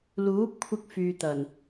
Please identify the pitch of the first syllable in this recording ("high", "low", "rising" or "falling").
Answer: rising